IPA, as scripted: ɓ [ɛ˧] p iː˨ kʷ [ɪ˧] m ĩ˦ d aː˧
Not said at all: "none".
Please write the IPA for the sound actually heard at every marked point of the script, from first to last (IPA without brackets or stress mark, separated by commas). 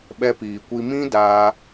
ɛ˧, i˧